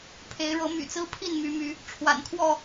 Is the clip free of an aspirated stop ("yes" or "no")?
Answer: no